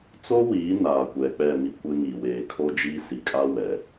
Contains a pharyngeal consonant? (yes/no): no